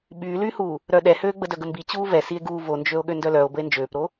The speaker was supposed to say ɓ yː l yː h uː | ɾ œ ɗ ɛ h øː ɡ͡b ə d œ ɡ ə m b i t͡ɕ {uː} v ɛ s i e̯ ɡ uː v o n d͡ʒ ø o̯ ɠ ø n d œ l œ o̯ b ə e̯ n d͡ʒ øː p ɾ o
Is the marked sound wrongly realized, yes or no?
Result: no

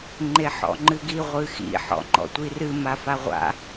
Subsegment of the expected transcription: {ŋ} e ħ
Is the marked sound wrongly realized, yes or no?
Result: yes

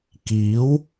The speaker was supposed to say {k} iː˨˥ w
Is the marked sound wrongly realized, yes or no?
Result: no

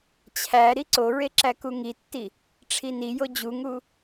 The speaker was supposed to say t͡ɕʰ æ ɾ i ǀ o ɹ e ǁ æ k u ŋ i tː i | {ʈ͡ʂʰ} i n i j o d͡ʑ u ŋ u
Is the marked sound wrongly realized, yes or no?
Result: no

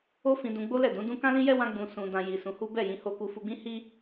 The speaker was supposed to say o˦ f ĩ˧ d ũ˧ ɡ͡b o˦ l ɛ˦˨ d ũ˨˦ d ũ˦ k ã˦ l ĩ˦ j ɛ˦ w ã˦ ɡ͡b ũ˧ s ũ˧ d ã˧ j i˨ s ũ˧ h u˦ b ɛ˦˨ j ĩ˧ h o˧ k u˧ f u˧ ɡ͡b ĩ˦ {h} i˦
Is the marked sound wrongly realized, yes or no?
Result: no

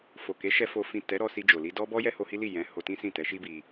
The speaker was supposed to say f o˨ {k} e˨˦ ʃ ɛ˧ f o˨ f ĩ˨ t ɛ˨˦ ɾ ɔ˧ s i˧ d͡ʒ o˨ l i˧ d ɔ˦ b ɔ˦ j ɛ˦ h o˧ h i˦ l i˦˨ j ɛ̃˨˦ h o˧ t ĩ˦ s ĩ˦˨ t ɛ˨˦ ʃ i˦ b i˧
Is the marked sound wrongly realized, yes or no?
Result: no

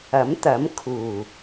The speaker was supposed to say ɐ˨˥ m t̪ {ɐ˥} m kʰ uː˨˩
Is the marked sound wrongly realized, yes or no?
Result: yes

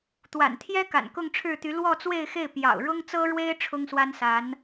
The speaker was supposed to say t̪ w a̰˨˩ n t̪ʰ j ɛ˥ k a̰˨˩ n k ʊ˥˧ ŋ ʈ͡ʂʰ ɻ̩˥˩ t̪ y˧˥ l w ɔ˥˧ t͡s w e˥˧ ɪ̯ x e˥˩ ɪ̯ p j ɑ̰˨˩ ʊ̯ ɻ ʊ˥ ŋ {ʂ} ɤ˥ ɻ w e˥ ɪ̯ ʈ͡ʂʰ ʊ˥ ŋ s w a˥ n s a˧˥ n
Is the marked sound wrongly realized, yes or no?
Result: yes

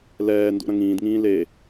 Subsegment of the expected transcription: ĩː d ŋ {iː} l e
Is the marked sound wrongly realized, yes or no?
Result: yes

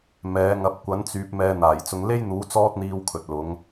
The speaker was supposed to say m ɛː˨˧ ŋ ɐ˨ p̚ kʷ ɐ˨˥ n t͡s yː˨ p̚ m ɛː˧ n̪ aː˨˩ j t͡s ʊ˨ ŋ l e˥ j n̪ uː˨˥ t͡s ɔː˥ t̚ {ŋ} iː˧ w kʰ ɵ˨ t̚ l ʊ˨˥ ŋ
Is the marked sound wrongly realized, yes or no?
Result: yes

